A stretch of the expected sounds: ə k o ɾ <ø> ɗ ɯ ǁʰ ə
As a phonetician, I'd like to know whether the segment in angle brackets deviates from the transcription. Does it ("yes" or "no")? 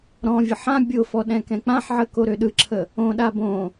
no